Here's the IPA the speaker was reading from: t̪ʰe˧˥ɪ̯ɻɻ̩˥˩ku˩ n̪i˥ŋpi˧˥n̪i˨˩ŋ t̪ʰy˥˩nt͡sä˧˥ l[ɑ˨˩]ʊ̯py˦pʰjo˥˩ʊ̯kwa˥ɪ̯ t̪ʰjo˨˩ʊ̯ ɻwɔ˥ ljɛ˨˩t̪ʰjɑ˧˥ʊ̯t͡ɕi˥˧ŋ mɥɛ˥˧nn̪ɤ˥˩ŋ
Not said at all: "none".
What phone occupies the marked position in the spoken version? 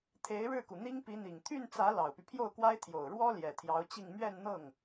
ɑ˨˩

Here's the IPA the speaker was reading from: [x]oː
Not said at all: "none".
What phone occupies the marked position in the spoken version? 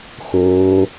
x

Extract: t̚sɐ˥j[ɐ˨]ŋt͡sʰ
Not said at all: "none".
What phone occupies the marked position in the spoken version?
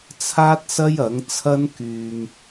ɐ˨˥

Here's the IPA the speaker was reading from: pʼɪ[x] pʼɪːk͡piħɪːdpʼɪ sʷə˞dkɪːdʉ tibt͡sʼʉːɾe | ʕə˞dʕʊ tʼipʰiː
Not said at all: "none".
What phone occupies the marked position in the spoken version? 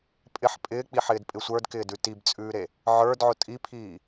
ħ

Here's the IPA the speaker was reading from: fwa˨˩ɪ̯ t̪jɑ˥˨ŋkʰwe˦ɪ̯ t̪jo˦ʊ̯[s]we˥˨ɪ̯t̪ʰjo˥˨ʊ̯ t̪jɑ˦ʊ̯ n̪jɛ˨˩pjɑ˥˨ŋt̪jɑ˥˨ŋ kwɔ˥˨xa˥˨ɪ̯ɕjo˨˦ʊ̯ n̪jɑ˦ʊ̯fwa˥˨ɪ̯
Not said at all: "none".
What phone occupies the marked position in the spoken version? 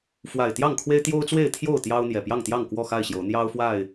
t͡s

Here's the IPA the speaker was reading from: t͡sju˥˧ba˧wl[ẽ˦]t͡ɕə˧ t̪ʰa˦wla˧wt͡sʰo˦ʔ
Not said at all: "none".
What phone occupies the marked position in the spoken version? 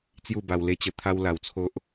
e˦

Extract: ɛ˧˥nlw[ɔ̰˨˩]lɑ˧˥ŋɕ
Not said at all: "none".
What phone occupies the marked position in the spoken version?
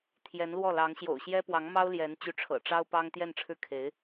ɔ˥˩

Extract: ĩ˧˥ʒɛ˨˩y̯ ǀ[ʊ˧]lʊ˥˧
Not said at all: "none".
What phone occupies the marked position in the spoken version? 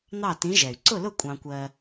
ʊ˥˧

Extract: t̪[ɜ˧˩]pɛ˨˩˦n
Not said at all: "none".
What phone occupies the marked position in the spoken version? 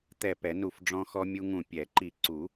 ɛ˧˩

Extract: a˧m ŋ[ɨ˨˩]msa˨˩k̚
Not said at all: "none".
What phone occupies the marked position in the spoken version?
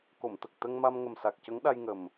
ə˨˩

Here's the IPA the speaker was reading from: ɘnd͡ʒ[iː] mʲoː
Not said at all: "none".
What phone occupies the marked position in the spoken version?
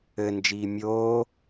iː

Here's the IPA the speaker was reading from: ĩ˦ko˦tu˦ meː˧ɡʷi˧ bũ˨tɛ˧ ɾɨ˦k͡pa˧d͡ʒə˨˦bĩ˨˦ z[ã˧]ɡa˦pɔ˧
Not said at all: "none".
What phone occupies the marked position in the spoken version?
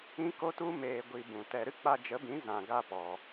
ã˧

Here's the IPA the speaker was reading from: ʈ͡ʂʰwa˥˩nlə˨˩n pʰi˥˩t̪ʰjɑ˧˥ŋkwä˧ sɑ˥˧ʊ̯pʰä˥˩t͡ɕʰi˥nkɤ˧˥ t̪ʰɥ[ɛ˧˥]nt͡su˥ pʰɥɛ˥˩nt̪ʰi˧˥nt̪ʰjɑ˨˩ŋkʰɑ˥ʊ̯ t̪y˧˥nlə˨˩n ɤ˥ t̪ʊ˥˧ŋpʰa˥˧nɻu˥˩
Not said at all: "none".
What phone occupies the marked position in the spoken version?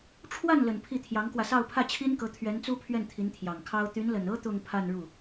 ɛ˧˥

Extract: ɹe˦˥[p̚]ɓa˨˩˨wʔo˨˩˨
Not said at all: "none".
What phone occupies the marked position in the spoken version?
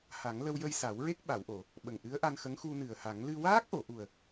k̚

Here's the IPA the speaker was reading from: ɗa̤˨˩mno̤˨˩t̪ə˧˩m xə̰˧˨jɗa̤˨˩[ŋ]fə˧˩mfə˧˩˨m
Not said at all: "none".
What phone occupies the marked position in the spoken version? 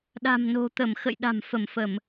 m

